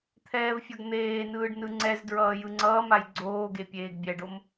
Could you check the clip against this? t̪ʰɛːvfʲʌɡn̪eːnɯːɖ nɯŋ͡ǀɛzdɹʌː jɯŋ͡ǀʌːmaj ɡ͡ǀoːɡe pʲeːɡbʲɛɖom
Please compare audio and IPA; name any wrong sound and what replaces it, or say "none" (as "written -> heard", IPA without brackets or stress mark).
none